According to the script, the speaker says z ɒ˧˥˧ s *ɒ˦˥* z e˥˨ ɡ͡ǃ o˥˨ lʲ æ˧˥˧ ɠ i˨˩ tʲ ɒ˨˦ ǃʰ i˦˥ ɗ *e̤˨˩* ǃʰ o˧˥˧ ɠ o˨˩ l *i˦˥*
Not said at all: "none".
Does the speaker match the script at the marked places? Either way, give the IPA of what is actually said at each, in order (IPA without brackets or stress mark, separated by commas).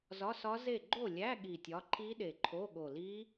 ɒ˦˥, e˨˩, i˦˥